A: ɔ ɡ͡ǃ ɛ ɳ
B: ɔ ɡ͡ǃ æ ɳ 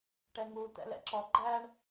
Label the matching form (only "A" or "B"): B